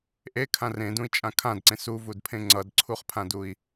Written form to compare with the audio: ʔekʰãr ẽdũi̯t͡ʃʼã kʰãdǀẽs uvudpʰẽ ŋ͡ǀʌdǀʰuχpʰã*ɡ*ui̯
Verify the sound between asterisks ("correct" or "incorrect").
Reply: incorrect